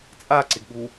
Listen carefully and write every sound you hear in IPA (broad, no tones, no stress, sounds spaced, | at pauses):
t͡sʼ a ǀ ɪ ɡ ɠ u